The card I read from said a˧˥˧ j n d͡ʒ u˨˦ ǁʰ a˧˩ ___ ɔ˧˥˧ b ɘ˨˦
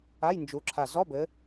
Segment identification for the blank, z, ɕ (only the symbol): z